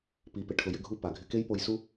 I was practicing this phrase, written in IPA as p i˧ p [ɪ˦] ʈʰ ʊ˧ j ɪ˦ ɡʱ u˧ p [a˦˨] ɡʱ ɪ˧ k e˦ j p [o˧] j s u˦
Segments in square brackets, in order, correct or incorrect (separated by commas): incorrect, incorrect, correct